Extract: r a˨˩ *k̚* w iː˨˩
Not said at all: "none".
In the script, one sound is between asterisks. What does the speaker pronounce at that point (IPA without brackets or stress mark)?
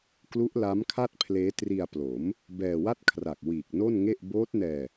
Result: k̚